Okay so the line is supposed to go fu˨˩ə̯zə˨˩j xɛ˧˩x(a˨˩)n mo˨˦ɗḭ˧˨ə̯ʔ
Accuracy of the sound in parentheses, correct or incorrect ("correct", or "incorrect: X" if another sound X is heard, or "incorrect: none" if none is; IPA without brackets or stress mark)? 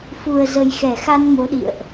incorrect: a˧